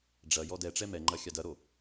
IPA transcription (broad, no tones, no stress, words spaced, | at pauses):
ɖ͡ʐɐ jɔdɛʈ͡ʂɛ mɛŋ͡ǃɐ xʲadɐɾo